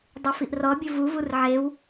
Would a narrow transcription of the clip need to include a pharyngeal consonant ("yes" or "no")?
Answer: yes